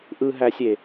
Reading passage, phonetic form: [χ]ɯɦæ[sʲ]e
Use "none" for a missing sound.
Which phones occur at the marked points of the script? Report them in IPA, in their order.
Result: ʔ, sʲ

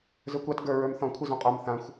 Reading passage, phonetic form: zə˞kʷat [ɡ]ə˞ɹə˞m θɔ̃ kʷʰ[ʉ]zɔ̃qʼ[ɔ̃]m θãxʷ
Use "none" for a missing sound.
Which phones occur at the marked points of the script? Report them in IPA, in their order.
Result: ɡ, ɨ, ɔ

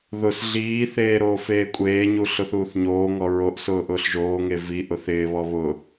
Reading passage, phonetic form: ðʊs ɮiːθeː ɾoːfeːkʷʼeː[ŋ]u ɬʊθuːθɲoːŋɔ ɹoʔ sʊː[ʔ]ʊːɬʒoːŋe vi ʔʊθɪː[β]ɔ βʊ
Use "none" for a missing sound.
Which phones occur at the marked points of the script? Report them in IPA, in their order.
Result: ɲ, ʔ, β

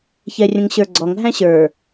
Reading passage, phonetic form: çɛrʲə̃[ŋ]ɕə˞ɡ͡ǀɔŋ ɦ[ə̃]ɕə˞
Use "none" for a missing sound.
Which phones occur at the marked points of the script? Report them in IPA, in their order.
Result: ŋ, æ̃

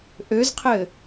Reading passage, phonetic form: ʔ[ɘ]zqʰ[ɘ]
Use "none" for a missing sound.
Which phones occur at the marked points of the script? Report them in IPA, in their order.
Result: ø, ɘ

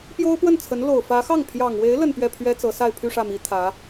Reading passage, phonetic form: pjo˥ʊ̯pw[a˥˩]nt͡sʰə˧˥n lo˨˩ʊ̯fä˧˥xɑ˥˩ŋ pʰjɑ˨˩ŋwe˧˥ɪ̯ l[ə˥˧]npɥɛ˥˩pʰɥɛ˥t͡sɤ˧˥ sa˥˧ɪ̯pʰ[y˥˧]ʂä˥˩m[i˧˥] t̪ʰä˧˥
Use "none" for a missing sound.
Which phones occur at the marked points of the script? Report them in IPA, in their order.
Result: ə˥˩, ə˥˧, y˥˧, i˧˥

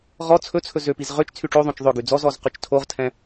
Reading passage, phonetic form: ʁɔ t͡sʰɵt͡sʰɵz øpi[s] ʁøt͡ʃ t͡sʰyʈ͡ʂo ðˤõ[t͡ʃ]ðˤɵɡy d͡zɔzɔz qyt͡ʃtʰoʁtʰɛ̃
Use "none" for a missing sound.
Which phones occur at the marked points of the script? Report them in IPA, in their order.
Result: z, t͡ʃ

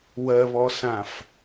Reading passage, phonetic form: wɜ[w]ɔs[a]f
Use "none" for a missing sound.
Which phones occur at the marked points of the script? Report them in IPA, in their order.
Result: β, ã

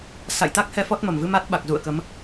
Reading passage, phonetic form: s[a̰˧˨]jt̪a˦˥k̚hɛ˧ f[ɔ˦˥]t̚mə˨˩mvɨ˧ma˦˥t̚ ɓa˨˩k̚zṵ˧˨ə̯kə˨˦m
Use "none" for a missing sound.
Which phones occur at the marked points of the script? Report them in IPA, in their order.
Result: a̰˧˨, ɔ˦˥

